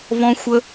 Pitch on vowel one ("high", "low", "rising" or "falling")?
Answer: high